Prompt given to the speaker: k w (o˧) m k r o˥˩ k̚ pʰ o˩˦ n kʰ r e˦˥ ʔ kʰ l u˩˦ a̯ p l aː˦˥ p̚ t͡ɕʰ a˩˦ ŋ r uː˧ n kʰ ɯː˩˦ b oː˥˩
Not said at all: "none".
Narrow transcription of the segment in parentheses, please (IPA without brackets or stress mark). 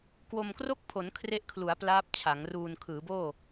o˧